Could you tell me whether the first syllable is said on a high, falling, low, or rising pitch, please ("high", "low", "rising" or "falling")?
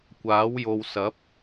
rising